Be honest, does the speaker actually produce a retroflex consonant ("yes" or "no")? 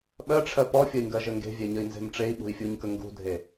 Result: yes